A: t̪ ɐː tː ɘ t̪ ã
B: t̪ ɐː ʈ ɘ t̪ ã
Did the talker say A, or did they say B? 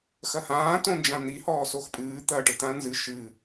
B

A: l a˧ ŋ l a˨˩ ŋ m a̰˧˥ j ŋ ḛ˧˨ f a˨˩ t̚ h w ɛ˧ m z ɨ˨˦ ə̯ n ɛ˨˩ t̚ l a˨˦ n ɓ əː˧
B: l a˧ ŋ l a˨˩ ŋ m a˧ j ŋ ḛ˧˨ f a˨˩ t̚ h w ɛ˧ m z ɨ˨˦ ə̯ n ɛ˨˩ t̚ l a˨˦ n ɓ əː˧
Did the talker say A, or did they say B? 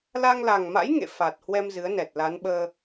A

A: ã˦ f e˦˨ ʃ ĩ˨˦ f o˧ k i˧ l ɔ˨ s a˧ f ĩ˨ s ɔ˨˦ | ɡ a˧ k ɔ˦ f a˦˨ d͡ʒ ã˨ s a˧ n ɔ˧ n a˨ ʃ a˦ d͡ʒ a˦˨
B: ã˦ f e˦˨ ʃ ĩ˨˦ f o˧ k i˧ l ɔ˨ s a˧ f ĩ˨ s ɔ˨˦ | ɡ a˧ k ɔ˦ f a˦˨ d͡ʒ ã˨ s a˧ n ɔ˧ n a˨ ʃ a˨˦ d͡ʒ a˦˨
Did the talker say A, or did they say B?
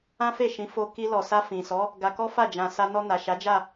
B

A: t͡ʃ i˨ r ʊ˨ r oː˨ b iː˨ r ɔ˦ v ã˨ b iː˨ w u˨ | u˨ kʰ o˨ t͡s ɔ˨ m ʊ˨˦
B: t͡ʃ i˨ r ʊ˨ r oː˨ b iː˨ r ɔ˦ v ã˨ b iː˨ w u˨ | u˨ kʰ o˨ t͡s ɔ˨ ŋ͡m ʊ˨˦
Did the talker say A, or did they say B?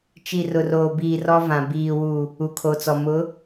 A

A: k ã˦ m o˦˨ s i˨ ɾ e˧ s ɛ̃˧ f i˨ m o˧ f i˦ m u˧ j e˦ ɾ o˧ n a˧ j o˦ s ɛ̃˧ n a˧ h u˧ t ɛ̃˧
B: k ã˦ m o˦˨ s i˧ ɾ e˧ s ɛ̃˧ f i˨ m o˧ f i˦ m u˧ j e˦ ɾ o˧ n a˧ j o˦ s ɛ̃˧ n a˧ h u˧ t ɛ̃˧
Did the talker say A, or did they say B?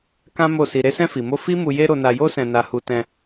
B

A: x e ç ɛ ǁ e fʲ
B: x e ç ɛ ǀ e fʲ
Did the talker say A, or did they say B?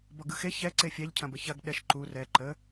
B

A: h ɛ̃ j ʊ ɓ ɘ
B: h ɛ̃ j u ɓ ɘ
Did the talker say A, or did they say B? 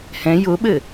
A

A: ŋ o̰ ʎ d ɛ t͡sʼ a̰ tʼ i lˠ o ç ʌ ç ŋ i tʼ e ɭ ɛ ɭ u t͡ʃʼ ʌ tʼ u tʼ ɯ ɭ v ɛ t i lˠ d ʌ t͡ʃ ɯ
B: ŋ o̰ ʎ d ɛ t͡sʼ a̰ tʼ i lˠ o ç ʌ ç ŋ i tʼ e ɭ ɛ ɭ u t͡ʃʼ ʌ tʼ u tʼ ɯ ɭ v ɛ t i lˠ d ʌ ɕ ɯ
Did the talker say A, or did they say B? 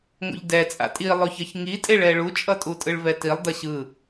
B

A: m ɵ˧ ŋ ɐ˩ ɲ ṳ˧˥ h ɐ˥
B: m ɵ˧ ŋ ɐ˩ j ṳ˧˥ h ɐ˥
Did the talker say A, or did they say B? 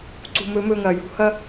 B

